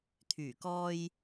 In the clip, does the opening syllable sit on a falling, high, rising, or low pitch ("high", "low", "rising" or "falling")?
low